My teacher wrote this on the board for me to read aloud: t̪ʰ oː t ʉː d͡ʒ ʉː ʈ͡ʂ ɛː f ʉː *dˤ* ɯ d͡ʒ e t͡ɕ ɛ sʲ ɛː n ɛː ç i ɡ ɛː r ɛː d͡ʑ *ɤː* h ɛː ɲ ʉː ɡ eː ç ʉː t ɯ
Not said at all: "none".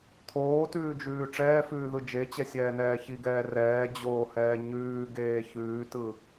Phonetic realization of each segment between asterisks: ð, oː

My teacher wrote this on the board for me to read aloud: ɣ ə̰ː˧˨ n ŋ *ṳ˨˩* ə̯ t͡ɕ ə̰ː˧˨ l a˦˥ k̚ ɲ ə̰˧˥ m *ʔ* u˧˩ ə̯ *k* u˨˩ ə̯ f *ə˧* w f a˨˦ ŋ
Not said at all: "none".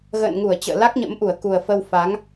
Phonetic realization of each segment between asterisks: u˧˩, ʔ, k, ə˧

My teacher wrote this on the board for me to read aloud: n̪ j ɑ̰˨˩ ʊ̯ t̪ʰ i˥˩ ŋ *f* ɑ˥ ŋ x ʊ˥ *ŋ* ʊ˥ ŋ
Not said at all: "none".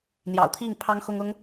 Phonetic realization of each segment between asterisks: pʰ, ŋ

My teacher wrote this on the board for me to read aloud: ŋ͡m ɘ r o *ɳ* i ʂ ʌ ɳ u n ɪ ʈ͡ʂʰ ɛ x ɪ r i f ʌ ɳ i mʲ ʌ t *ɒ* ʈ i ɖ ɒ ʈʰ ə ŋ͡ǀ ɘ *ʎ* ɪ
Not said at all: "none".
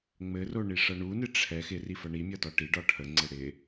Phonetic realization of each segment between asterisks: ɳ, ɒ, ɽ

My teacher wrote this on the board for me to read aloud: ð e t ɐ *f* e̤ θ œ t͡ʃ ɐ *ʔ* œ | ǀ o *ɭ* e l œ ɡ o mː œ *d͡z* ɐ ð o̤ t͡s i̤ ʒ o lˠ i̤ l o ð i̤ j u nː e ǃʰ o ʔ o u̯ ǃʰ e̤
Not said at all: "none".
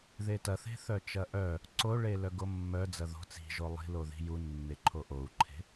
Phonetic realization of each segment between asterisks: θ, ʔ, ɭ, d͡z

